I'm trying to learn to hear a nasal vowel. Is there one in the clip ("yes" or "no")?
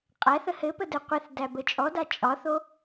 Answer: no